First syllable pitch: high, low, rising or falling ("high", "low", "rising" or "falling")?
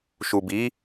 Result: low